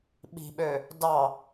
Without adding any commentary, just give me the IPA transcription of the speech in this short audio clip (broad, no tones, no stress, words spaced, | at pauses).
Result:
ɓi̤ɓø | dɑ